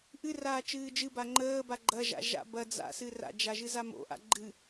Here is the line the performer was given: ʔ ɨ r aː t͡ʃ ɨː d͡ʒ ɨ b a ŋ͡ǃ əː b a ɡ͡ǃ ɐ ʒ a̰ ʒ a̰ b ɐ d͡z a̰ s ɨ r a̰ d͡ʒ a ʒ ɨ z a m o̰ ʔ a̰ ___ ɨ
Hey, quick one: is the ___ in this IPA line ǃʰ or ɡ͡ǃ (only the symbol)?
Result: ɡ͡ǃ